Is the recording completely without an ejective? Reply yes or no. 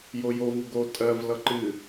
no